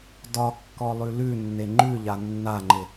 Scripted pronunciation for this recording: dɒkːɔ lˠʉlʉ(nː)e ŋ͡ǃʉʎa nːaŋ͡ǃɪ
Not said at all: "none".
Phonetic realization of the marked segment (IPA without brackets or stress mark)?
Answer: nː